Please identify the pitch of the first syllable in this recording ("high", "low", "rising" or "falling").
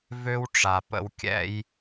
high